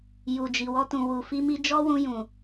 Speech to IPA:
ju˨d͡ʒi˨wɔ˧ tũ˨wu˨fi˧mi˧ d͡ʒɔ˦wũ˧ jũ˨

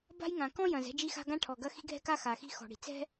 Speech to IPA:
ba̤˥jŋã˩ kɔ̃˥jɐ̃˩z ɛ̤˥d͡ʒi˥xa̤˥ ɡã˥ʈʰɔ˩ ɡɐ˥ xi̤˥ɡʱɛ̤˥ka˥ xa˩xi̤˥ xɔ̤˩ɽi̤˩ t͡sɛ̤˥

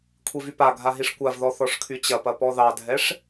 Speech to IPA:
kʷʰivypaɡʱa ɦiʂkʷavðɔ θɔʂkʰyt͡ɕɐpɐ pɔðɑdʱɛʂ

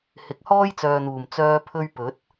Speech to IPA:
hɪ˨˥k̚hɔː˥jt͡sœː˨n̪uː˨˩m t͡sœː˧pʰɵ˧ɥ pɵ˨˥t̚

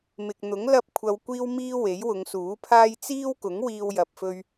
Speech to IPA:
mɪ˨k̚n̪ʊ˨˥ŋ lɐ˥p̚kʷʰɐ˧wkʷiː˥wmiː˥ we˨˥jwʊ˨˧ŋsuː˨˥ pʰaː˥j t͡siː˥wkʊ˨˥ŋ wiː˧wjɐ˨p̚fɵ˧ɥ

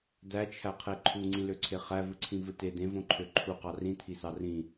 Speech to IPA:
dæt͡ʃʰæqʰe ǃʰuŋ͡ǀĩløǀʰe χævɯǀʰĩvɯ te dẽvõǃʰø ǃʰuqɑ rĩt̪ʰisɑ rĩ

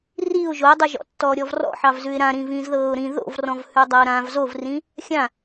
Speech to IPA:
riʊ̯ ʒoɪ̯dˤʉʒɔ̰tːɔː ɾʲɔvrɔ̰ ħɑvzʉɪ̯ɾãɾĩːv ĩːzðɤːʊ̯ɾĩ ðo̰vrɔ̃vhʉ dˤɐʊ̯ɾãv zovrĩ | xʲã

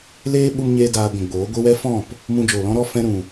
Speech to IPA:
leː˦ɓu˧mɲeː˧ daː˧ɡʷũ˨ɡ͡boː˨˦ ɡʷi˧wɛ˦fɔ̃˦˨p | mũ˧d͡ʒoː˨lɔ̃˦ɾɔ˦ fɛ̃˦ɾũ˨

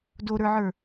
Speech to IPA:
doɾə˞ʕə˞

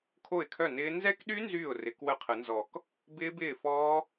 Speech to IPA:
kʰo˥˩ɪ̯kʰœ˥˩nɪː˦˥ nzɛ˦˥kɗy˦˥ nzyː˥˩ʊ̯ rɪ˨˩˦kwə˥˩qʰə˨˩˦nzɔ˨˩˦k | bɪː˦˥bɪː˥˩ fɔː˦˥

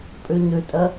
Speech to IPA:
pʼʉɲʉtʼə

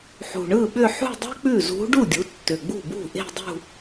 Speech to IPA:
ħṳ˨˩ɳɯ˥˩ɓʏ˥˧ ħṳ˥˧dˤɛ̤˥k͡pʉ˥˩zṳ˧˥ ɖu˥˩dʲu˩˥ tːʏ˨˩ɡ͡bṳ˥˩bṳ˥˩ ʔe̤˥˧dˤṳ˥˧

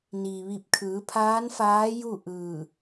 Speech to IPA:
niː˩ʋi˧˩p̚kʰɯː˩˧pʰaː˧˥n faː˧˥ju˥˨ ʔɯː˧˩

